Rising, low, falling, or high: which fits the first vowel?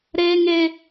low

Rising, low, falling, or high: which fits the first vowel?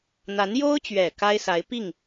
rising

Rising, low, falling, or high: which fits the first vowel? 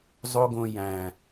high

